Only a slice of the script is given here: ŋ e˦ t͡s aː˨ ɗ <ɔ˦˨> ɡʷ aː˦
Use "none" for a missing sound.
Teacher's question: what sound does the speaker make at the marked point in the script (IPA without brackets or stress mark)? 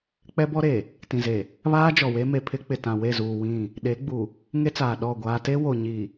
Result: ɔ˦˨